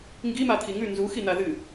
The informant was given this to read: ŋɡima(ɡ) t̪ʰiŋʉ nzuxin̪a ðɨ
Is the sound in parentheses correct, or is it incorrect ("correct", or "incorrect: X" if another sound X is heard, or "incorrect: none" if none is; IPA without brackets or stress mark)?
incorrect: none